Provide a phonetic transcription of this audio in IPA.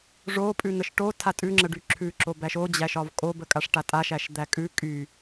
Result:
ʐ o pʼ ʉ n̪ ə ʃ ʈ o tʰ a tʼ ʉ ŋ͡ǁ ə ɖ y ǁʰ ʉ ǁ o b æ ʃ o d͡ʑ æ ʃ ɒ v kʼ o b ə kʼ a ʂ ʈ a tʼ a ʃ æ ʃ d̪ æ kʼ ʉ kʼ y

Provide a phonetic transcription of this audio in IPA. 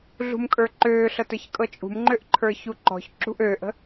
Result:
ɮ ṳ m kʼ ə˞ ǃ øː ɬ ɤ t ə˞ ç kʼ ɤ t͡ʃʼ ṳ m ŋ͡ǃ ø ʔ ǃʰ ə˞ ç u ǃ ɔ̤ ç ǁ ṳ ʔ øː ʔ ə̤

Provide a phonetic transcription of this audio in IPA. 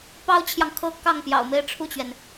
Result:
p ɑ˥ ʊ̯ t͡ɕʰ j ɑ˨ ŋ kʰ ɤ˥ k ɑ˥˩ ŋ p j ɑ̰˨˩ ʊ̯ m e˥˧ ɪ̯ ʈ͡ʂʰ u˥˩ t͡ɕ ɥ ɛ˩ n

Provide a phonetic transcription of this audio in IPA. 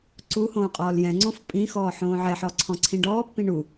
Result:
ǀ u h õː qʼ ɔː l j ɛ̃ ŋ͡ǀ õ f pʼ ĩ x ɔː ħ õː ʕ ɛ ħ ɔ ǀʰ ɔ̃ ǀʰ ĩ ɖ ɔː pː ĩ ɳ u

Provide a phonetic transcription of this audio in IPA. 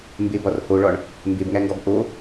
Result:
m b e b ɒ r h o ɭ ɒ ɳ | m b e b ŋ æ ŋ ɡ ɒ b ʔ o

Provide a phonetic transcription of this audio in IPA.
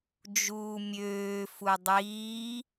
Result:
d͡ʒ uː mʲ øː f u dˤ iː

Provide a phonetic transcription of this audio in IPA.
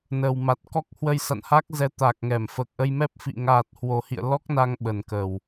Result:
n əː˨˩ w m a˨˩ t̚ k ɔ˦˥ k̚ h w ə˧ j s a̰˧˨ n h a˦˥ k̚ z ɛ˨˦ t̪ aː˨˩ k̚ ŋ ɛ˧˩ m f əː˨˩ k̚ ʔ ə˧ j m ɛ˦˥ p̚ f ḭ˧˨ ŋ aː˨˩ t̚ h w o˨˩ h ḭ˧˨ ə̯ l ɔ˦˥ k̚ n a˧ ŋ ɓ ə˨˩ n k əː˨˩ w

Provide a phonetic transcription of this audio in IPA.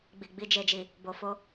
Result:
ɡ͡b i˨ ɡ͡b i˨ d͡ʒ e˨ d͡ʒ i˨ | b o˨ f o˧

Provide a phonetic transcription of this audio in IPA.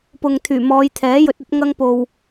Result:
p ʊ˨ ŋ t̪ʰ yː˨˩ m ɔː˨˧ j t̪ʰ ɛː˨˥ j ɵ˧ t̚ ɐ˥ t̚ ŋ ɐ˥ ŋ p o˧ w

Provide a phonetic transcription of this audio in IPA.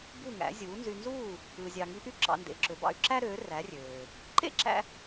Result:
b u˥˩ ŋ æ̰˩˥ zʲ uː˩˥ n z y˧ n z uː˥˩ | ɯ˧ zʲ ɑ˧ ŋ i˧ ʔ y˥˩ ǁ ɑ̰˧ n d ḛ˩˥ ǁ ø˩˥ b ɑ̰˧ y̯ ǁ æ˥ ɾ øː˩˥ r æ˩˥ rʲ øː˩ | ǃ ḛ˥ ǁ æ̰˧

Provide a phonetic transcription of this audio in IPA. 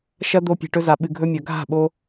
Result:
ʃ ɐ˦ d̪ o˧ pʲ e̤˨ ʈ ɵ˧ z a˨ ɓ ɨ˨ ɡʱ ɵ˧ mʲ ɐ˨ ɡʱ a̤˦˨ ɓ o˧

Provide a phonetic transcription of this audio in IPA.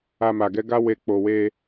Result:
a˧ m a˨ ɡ ɛ˨˦ ɡ a˦ w e˧ k͡p o˨ w e˧

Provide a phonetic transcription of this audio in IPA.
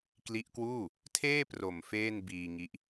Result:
k l i˦˥ ʔ k w uː˥˩ | tʰ eː˥˩ p r o˨˩ m f eː˥˩ n b iː˧ ŋ i˦˥ ʔ

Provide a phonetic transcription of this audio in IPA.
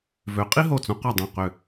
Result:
v ø˨˦ qʼ i˥ ɦ o˧˩ t͡s õ˨˦ q ɒ˧˩ dˤ œ̃˧˩ q ø˧˩

